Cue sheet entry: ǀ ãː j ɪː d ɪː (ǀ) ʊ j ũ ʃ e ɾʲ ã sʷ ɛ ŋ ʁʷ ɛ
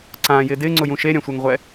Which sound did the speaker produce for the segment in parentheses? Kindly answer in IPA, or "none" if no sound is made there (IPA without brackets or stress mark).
ŋ͡ǀ